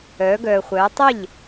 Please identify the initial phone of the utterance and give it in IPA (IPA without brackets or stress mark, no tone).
œː